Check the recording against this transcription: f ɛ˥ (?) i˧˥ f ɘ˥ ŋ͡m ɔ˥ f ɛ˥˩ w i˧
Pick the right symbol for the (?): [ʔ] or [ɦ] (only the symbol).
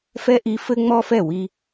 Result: ʔ